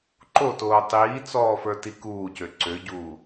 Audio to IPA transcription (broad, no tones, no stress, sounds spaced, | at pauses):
ǃ o t oː tˤ iː t͡s ɔː f ə˞ t i k uː c ø ǀ ø ɟ uː